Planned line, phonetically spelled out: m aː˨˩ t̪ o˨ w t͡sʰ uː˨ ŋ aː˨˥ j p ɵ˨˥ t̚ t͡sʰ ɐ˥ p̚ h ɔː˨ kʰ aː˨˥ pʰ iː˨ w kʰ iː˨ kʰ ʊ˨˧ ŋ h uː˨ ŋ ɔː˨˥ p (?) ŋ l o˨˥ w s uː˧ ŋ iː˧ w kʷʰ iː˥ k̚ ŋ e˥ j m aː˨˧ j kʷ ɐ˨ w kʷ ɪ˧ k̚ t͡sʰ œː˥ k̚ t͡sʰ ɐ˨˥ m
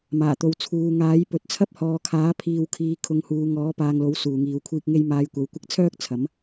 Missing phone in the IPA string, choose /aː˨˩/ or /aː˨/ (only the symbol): aː˨